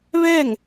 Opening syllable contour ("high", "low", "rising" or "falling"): falling